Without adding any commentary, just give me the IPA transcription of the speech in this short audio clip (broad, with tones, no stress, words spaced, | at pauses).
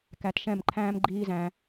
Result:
kæ˧tʃɛ̃˦˨mǃʰæ̃ː˦m ɡ͡ǃiː˦zæ̃˧